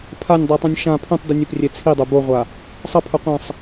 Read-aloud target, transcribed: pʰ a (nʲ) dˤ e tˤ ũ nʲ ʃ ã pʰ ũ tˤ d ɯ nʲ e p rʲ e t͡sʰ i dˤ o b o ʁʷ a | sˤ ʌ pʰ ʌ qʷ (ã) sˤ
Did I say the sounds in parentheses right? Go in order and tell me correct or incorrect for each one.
correct, correct

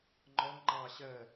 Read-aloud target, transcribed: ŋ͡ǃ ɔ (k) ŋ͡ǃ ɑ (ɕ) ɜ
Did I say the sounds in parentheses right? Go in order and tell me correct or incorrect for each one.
incorrect: ŋ, correct

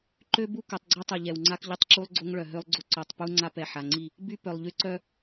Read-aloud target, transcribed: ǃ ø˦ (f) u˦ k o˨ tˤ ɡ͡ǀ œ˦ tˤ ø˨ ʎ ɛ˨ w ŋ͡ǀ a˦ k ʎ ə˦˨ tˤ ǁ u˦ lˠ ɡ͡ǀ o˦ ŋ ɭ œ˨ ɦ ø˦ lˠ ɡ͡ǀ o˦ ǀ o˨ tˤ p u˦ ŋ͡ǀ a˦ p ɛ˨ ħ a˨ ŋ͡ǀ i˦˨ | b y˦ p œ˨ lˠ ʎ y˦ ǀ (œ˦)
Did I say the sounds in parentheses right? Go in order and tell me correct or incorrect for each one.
incorrect: b, correct

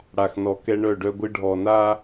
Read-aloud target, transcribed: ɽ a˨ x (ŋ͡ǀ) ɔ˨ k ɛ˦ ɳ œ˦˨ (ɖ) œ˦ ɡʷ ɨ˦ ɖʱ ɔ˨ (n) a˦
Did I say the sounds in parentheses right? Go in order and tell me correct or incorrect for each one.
incorrect: n, correct, correct

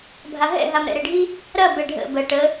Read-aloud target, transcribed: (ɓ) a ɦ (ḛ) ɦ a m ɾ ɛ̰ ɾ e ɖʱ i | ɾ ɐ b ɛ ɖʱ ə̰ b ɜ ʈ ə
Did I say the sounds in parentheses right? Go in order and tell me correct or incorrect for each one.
incorrect: bʱ, incorrect: ɛ̰

